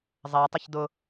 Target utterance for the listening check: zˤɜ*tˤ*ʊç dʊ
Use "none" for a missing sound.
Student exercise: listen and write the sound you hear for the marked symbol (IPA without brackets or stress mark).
tˤ